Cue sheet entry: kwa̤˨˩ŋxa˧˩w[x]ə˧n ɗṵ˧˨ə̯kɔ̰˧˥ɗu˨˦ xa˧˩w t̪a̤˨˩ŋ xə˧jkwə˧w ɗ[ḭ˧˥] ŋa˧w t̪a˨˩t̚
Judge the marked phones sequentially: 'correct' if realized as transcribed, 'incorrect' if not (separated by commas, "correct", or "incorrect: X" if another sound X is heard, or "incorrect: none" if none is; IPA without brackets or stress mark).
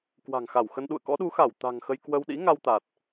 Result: correct, correct